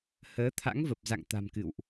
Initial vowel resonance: oral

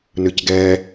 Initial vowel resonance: oral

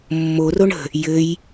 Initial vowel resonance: oral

